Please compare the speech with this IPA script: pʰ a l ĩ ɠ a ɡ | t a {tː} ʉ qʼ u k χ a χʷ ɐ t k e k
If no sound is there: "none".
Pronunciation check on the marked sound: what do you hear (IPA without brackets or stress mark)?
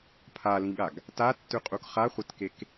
tː